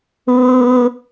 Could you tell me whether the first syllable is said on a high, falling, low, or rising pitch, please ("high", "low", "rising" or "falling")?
low